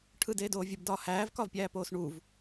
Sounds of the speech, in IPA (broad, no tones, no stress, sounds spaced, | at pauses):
ʈʰ ɯ d eː d oː vʲ ɯ b d ɒː h æː v k ɒ v pʲ æː p oː s ɳ u v